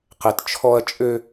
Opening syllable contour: low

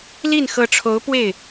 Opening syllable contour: falling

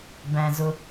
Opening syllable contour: low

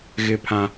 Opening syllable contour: high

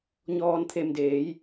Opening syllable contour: low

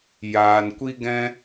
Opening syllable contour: low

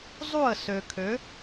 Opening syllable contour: falling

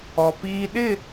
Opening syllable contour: low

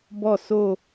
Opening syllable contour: falling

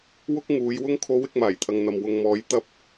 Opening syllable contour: high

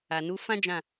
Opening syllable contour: low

